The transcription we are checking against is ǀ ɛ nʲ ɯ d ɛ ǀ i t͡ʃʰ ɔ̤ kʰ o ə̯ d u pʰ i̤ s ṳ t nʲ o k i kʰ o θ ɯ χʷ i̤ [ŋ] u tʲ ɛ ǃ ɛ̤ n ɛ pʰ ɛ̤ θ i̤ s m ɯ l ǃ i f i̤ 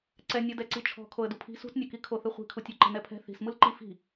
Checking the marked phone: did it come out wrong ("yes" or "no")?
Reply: yes